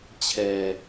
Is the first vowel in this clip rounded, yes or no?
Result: no